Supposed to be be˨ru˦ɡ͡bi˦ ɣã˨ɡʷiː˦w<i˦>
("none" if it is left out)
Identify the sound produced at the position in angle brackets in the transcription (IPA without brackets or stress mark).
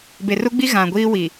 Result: i˨